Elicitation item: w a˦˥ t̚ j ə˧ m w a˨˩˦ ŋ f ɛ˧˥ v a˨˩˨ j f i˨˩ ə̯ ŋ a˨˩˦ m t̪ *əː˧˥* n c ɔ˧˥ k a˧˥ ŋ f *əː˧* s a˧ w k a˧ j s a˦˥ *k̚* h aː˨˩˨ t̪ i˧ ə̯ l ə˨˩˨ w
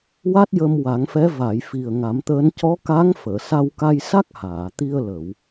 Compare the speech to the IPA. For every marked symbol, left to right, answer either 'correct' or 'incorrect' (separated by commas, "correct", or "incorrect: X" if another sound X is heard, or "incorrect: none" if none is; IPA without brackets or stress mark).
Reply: correct, incorrect: əː˨˩˨, correct